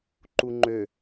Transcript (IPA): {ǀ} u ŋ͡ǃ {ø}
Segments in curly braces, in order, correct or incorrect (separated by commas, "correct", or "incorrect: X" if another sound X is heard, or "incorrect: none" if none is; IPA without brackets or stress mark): incorrect: ǃ, correct